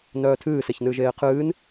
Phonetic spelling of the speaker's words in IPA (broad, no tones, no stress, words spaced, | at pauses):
nœːtʰɨːseçnɨːʒ eːqʰɨːn